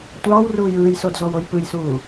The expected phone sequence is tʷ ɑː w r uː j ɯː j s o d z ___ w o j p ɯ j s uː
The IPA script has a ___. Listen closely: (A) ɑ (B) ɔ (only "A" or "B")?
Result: B